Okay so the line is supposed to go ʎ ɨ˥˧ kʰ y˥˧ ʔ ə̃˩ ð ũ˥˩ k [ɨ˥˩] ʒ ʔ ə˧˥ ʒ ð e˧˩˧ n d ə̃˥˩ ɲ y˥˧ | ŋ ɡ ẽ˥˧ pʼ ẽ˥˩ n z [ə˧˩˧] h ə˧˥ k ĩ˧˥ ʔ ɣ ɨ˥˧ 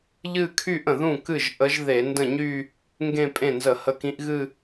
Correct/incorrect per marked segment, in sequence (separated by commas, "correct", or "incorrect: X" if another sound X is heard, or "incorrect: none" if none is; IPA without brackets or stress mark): correct, correct